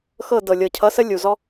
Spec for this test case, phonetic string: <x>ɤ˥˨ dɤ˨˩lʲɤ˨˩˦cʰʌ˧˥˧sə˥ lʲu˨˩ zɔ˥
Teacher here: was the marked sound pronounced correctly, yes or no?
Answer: yes